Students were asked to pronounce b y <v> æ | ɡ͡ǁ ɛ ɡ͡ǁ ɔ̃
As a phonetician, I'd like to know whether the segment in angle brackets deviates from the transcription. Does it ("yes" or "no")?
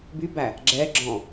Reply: yes